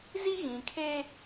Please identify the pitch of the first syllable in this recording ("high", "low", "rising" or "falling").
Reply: high